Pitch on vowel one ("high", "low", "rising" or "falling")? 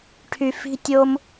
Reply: low